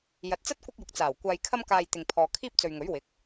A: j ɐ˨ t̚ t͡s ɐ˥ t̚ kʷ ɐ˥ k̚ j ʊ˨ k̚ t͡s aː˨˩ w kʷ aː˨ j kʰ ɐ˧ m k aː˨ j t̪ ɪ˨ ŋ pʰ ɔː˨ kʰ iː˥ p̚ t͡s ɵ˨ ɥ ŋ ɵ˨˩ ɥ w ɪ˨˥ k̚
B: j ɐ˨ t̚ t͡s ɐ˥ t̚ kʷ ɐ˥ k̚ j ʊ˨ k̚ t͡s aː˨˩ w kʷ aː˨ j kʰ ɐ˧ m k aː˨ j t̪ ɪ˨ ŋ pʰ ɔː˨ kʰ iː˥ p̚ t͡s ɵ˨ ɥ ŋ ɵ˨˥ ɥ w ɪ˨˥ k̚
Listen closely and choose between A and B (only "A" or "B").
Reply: B